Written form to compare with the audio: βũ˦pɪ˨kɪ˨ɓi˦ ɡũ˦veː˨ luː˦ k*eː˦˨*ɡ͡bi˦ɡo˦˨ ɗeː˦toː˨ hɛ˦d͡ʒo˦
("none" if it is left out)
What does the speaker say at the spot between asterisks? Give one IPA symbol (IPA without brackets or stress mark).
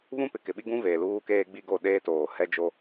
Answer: eː˦